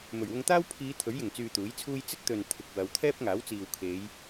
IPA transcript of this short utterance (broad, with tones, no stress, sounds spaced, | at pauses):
m ɵ˨˩ ɥ w ʊ˧ ŋ t̪ aː˥ w pʰ iː˨˧ t̪ʰ ɵ˨˥ ɥ j ɪ˨˩ ŋ t͡s yː˨ t̪ uː˨˥ j t͡sʰ uː˥ j t͡s ɪ˥ k̚ t̪ ɵ˨ n t̪ʰ ɪ˨ k̚ w ɐ˨˧ w t̪ʰ ɛː˥ p̚ ŋ aː˨˥ w t͡s iː˨ w kʰ e˨˧ j